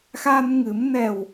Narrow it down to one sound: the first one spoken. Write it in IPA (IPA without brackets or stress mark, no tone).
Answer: x